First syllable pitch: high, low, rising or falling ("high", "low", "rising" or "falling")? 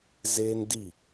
high